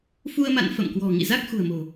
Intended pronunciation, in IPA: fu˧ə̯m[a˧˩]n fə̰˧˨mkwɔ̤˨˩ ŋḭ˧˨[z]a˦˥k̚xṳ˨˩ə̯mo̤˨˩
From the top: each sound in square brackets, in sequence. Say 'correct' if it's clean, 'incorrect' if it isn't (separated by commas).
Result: incorrect, correct